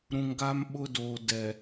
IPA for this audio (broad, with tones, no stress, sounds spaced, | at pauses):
ɾ ũ˨ ŋ ɡ a˦ m ɓ ʊ˦ d oː˨ d ɛ˨